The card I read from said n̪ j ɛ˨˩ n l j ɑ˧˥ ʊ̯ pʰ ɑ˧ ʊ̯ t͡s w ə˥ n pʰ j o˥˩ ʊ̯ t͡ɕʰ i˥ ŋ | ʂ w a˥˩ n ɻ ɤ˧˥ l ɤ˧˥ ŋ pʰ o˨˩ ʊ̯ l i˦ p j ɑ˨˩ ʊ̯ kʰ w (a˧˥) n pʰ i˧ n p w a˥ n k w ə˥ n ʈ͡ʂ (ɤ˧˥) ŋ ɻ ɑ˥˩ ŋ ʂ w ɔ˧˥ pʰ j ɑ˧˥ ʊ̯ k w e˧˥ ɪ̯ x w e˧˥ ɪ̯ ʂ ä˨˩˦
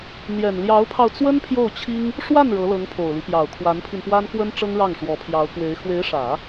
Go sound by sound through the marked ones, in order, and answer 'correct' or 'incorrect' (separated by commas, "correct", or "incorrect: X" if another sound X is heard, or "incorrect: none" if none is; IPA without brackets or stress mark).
correct, incorrect: ɤ˥